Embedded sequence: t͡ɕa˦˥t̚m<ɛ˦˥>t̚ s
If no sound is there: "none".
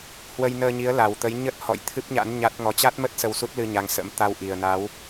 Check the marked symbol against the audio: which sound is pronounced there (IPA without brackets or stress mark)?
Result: ə˦˥